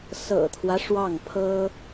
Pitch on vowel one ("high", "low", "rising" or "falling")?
low